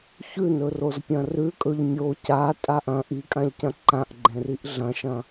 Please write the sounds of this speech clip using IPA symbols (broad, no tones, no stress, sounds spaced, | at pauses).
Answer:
ç ʉ n ɵ r o z pʲ ɐ̃ r ʉ kʼ ɵ ʎ mʲ o c a tʼ a ʔ ɐ̃ ʔ i kʼ ã ʎ c ɐ̃ ǃ ã ʔ ɡ͡ǃ ẽ r i ʔ ɮ ɐ̃ ʃ ɐ̃